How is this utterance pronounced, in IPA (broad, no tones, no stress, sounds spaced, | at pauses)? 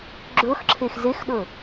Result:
ɡ͡ǁ ɵ x ǁʰ e x z e x ɗ ɵ